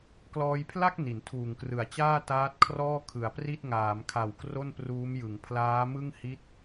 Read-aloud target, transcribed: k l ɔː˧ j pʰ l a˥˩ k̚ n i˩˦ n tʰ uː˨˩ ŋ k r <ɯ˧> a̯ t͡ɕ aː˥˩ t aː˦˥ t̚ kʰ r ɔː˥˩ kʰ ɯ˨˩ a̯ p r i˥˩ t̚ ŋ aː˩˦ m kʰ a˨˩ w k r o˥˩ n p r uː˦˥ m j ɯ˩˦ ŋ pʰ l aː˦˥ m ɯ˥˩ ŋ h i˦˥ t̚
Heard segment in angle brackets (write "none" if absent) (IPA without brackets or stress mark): ɯ˨˩